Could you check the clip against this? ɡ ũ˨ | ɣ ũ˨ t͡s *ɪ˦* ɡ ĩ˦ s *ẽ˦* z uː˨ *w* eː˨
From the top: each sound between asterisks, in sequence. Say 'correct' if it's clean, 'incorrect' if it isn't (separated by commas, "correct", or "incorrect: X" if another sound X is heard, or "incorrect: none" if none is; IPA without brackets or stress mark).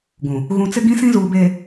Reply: correct, incorrect: ĩ˦, incorrect: b